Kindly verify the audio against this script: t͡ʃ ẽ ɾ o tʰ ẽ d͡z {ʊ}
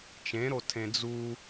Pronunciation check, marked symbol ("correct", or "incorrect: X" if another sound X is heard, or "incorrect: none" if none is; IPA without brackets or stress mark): incorrect: u